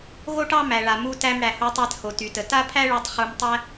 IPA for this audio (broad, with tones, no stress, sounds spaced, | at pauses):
ɣ o˥ ʈ ɑ˥ m æ˩ ɭ a˩ m u˧ t æ˧ m ɽ æ˩ h o˧ tˤ æ˧ t h o˩ t y˩ t ə˩ t a˥ pʰ æ˥ ɭ o˧ tˤ χ u˧ m tˤ æ˥